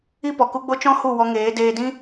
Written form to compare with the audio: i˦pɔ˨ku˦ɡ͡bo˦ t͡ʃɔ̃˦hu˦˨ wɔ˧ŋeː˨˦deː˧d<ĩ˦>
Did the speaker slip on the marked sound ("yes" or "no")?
no